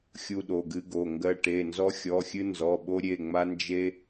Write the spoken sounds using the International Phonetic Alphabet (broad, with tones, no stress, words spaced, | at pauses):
xʲu˧ɗo˩˧˩ɡɨ˧ɡo˩˧˩ ŋɡɜ˧ʈe˩˧˩ nzɔ˧xʲɔ˩˧˩xʲɨ˧ nzɔ˩˧˩ɓo˧ɾʲe˩˧˩ŋ͡ma˧ nd͡ʒe˧